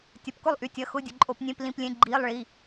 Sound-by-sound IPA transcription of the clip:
tʲ ɐ˩˧˩ p k ʊ˦˨ lˠ ʔ y˩˧ tʲ ɐ˩˧˩ x ʊ˧˥˧ dʲ ə˩˧ ǃʼ o˧˩˧ p nʲ ẽ˧˥˧ p l ĩ˧˥˧ p lʲ ẽ˧˥˧ ɡ͡ǃ iː˧˥˧ lˠ ɭ i˩˧˩

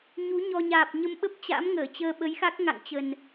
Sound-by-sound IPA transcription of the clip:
ɲ u˨˦ ɲ ɔ˧ ɲ aː˨˩ p̚ ɲ ə˧ m ɓ ə˦˥ p̚ t͡ɕ a̰˧˥ m ŋ əː˧˩ t͡ɕ əː˧ ɓ ə˨˦ j x a˦˥ k̚ ŋ a̰˧˨ ŋ t͡ɕ ə˨˩ n

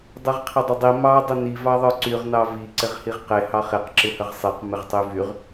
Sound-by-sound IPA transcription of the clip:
dˤ i ʁ qʰ ɪ dˤ ɪ dˤ i m ɑ dˤ ə n i v ɑ ðˤ ə˞ ǀ y ʁ n ɑ v i ǀ ɪ ʁ h i ʁ q e h ɑ χ e q ǁ ɪ h ə ʁ sˤ e q m ɪ ʁ tˤ y v y ʁ

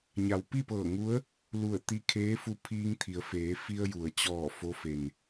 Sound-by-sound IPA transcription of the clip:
ɲ a˩ w p i˥˨ p ɤː˧˩ ŋ u˧˥ ə̯ | l u˧˩ ə̯ t̪ i˧ kʰ eː˧˥ f u˧ pʰ iː˧ ŋ t̪ʰ i˩˧ ə̯ f eː˩˧ f i˧ ə̯ j u˩ ə̯ t͡ɕ ɔː˧˩ f o˧˥ f e˩ n

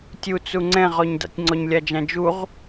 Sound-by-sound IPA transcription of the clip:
tʲ u t͡s u ŋ͡ǀ ɛ̃ ʁ ɔ ɲ d a̰ tʲ ŋ͡ǀ ɔ ɲ lʲ a d͡ʒ ã d͡ʒ u ʁ

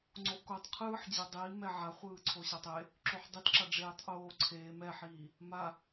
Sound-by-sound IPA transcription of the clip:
ŋ͡ǀ o ʔ k o tˤ qʰ ɯː ħ d͡ʑ e dˤ iː m ɛ ʕ a χʷ ɯː ǀʰ o ɕ a tˤ e | ǁ o ħ dˤ i t ǁ a ɖ͡ʐ eː tˤ ʔ oː ǀʰ eː m ɛ ħ iː | m a

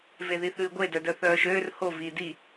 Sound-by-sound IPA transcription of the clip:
v e ð i θ ʉː ɡʷ e d œ d œ θ œː ʃ øː r h o v iː d i

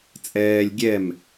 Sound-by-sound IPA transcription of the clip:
t͡sʼ ɛː lʲ ɡʲ ɛ m

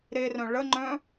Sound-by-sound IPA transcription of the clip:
ɾ e r œ̃ ɭ ə ŋ͡ǃ œ̃

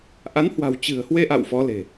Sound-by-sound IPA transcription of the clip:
ʔ a˨˦ n h w a̤˨˩ w t͡ɕ ɨ̤˨˩ ə̯ h w e˧ ʔ a̰˧˨ w f ɔ˨˦ l e̤˨˩

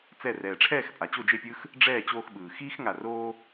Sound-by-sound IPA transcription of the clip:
t͡s ɛ˧˩ r ɛː˩ ʈ͡ʂʰ ɛː˥˨ x pʼ a˩ t͡ɕ o˥˨ d͡ʒ e˥˨ pʲ ɯː˥ x | ɖ͡ʐ ɛː˥˨ t͡ɕ oː˧ x ɓ ɯː˩ x iː˥ x ŋ a˧˩ r oː˥

